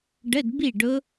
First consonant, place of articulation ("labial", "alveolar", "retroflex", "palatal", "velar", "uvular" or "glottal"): retroflex